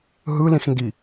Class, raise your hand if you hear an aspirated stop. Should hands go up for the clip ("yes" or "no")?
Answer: no